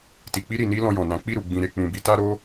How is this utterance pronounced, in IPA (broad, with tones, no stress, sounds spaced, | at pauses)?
t i˨ k͡p i˧ ɾ i˨ n i˧ l ɔ̃˧ j ɔ̃˨ n ã˨˦ k͡p i˦˨ ɾ u˨ ɡ͡b ĩ˨ ɾ e˨ k͡p ũ˨ b i˨˦ t a˦ ɾ o˦